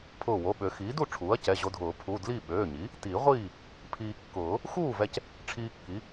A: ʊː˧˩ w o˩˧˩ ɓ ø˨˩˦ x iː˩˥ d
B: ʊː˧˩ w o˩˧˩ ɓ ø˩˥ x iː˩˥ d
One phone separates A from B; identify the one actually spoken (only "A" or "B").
A